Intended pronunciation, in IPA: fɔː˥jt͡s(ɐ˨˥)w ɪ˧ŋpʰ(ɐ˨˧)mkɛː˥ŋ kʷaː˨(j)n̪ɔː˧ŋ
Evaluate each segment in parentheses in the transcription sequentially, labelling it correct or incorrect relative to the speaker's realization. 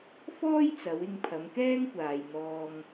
incorrect, correct, correct

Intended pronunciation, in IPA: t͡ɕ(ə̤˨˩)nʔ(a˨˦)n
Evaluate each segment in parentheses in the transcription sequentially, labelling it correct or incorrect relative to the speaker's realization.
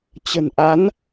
correct, correct

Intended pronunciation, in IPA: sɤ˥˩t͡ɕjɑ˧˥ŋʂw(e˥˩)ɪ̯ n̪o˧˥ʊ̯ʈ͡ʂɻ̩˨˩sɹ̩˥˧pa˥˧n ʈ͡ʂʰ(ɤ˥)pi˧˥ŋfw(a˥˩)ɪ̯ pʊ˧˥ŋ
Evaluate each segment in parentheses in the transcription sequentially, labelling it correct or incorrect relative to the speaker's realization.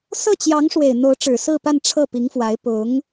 incorrect, incorrect, incorrect

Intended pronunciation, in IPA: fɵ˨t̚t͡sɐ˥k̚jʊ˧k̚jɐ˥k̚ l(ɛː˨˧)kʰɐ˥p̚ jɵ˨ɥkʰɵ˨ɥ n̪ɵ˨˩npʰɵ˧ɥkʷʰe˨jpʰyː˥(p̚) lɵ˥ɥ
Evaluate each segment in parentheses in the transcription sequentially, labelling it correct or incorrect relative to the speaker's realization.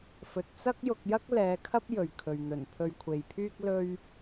correct, incorrect

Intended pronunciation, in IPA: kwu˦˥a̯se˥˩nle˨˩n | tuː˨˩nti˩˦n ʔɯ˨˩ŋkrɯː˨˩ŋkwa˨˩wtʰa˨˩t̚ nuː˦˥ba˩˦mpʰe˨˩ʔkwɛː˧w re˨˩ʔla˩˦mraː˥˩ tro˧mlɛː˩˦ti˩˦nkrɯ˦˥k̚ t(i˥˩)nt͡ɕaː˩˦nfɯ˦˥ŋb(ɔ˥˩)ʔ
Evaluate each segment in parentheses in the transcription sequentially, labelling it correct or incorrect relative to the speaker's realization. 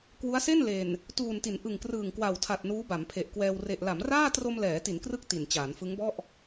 incorrect, correct

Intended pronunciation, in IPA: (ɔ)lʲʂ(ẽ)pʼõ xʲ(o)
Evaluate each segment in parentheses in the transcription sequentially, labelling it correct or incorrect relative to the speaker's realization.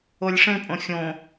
incorrect, correct, incorrect

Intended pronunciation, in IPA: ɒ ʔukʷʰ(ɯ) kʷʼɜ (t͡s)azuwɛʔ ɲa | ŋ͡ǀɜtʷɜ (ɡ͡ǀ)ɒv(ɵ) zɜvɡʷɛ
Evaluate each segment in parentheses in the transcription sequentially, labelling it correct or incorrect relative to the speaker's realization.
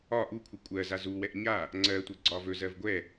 correct, incorrect, correct, correct

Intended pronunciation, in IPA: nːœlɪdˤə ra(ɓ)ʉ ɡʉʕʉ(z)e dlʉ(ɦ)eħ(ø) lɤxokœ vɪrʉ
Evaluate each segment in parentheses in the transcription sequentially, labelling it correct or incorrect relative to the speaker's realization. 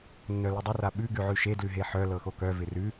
correct, incorrect, correct, incorrect

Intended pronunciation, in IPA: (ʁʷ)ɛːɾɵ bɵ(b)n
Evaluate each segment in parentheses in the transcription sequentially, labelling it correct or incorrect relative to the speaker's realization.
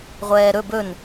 correct, incorrect

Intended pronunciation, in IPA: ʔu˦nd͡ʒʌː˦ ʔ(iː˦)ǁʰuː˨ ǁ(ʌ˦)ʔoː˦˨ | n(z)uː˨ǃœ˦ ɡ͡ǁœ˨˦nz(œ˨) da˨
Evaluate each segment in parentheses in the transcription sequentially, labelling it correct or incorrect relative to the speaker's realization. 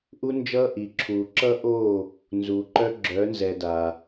incorrect, correct, correct, incorrect

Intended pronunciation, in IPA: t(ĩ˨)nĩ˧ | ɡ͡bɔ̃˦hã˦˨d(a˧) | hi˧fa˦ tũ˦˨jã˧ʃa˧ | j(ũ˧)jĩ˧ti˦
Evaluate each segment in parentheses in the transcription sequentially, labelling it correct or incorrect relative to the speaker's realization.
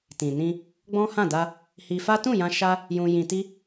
correct, correct, correct

